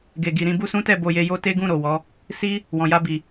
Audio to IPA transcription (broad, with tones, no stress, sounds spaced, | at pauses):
ɡ e˨ ɡ i˨ ɾ ĩ˧ b u˦ s ũ˦ t ɛ˦˨ b o˨ j e˨ j o˨˦ t e˦ ɡ ũ˦˨ ɾ o˨ w ɔ˨˦ | s i˦ | w ɔ̃˨ j a˧ b i˨